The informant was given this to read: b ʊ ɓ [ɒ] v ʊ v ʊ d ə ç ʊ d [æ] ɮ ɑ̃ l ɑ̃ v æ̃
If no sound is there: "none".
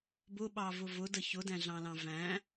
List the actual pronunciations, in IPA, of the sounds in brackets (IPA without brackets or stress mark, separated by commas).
ɑ, æ̃